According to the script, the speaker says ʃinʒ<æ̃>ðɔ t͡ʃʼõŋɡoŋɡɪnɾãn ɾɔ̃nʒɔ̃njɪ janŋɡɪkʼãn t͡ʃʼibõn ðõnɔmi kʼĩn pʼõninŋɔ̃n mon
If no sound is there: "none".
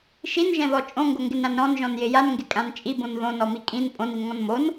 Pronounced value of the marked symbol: ɛ̃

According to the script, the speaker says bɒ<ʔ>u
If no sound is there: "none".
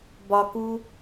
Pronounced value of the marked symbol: k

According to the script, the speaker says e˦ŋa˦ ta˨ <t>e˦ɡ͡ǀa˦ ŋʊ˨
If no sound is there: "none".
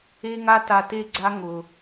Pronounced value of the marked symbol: t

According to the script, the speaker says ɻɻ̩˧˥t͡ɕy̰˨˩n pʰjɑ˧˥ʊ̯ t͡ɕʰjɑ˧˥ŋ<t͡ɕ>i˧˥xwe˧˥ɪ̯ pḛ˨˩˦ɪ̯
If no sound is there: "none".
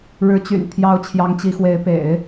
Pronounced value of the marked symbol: t͡ɕ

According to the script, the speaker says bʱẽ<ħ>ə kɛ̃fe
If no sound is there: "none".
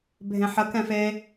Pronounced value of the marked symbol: ħ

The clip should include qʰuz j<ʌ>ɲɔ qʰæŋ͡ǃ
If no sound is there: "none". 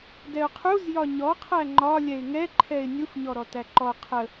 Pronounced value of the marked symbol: ɒ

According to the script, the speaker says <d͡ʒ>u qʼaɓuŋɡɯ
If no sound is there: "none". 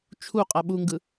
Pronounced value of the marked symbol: t͡ʃʰ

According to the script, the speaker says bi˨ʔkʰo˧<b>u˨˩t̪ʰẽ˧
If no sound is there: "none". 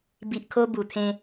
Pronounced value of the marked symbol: b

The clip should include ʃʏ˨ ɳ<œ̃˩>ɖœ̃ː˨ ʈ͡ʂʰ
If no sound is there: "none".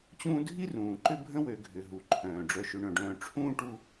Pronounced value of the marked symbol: œ̃˩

